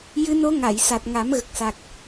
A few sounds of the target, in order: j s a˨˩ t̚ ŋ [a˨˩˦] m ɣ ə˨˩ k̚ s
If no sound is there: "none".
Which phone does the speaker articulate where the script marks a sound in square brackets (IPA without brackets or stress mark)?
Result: a˨˩˦